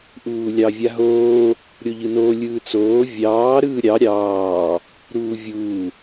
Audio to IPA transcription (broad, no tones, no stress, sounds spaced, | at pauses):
ʔ uː lʲ ɑ vʲ a ɦ oː | ɾʲ o ʎ ɯ n o lʲ ɯː t͡s oː vʲ ɑː ɾ ɯː ɾʲ ɑ ɾʲ ɑː | ɾ uː vʲ uː